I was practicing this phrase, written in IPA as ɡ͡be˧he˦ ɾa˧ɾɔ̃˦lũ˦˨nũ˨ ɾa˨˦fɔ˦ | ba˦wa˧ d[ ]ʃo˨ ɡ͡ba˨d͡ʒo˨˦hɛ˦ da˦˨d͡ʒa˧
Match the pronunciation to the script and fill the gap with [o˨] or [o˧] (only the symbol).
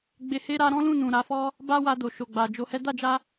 o˨